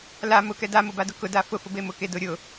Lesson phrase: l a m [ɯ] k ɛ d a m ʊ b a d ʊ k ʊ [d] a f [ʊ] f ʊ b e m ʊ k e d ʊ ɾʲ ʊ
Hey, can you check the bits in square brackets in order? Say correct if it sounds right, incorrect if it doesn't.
incorrect, correct, correct

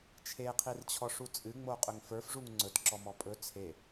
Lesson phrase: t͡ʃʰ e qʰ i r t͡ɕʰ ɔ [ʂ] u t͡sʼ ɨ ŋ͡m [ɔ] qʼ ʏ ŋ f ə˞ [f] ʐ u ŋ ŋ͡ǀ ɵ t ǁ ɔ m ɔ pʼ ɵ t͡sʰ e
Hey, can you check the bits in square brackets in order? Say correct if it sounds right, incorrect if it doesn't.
correct, incorrect, correct

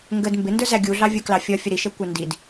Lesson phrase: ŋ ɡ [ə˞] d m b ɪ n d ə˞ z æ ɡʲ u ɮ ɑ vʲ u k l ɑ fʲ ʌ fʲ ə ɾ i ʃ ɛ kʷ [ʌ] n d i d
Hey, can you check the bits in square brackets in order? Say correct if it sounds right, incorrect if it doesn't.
incorrect, incorrect

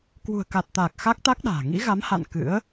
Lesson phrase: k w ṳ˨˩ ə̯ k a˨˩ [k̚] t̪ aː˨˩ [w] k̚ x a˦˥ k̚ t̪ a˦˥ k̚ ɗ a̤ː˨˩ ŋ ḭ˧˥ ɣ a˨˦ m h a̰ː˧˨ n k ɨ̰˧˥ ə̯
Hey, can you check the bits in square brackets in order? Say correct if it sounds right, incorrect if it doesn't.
incorrect, incorrect

